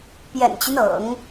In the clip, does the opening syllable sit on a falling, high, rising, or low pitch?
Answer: low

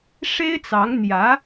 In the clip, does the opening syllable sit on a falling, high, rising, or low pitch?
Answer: high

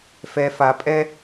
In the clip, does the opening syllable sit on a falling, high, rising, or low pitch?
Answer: high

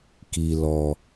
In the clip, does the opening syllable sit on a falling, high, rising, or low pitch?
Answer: low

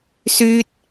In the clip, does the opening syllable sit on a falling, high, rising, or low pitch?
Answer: high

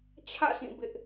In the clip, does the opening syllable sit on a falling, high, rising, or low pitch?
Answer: falling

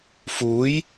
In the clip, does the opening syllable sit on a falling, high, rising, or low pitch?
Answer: rising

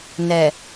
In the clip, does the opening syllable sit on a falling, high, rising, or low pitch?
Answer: low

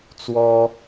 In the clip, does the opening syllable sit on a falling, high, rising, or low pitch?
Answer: high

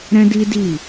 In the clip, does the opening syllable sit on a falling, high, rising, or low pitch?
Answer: high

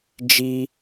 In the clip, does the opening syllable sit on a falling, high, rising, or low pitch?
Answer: high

